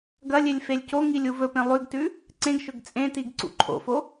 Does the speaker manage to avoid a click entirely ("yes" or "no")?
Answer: no